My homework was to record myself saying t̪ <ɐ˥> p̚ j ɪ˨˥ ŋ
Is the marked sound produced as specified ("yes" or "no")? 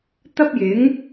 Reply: yes